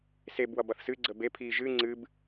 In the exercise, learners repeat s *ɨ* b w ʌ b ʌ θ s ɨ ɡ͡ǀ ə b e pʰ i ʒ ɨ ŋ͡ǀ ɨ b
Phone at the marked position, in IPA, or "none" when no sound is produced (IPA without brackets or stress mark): e